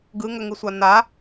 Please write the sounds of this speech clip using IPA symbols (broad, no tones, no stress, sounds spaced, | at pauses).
ɡ ɯ ŋ ə ŋ ɯ sʷ a n a